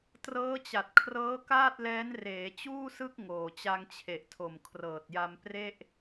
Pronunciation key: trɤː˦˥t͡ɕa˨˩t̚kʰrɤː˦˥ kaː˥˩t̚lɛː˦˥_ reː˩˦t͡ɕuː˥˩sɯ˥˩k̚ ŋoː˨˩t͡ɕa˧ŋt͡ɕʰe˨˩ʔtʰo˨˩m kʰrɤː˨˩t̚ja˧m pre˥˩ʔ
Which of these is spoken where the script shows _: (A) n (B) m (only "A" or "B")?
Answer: A